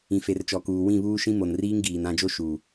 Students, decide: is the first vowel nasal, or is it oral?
nasal